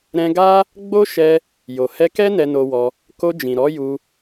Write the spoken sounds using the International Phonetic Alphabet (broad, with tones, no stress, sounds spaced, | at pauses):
ɾ ɛ̃˧ ɡ a˦ | ɡ͡b o˦ ʃ ɛ˧ | j o˨ h ɛ˧ k ɛ˦ n ɛ˧ n o˧ w ɔ˧ | k o˧ d͡ʒ ĩ˨ ɾ ɔ˨˦ j u˧